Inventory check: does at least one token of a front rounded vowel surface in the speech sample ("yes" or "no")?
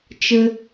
no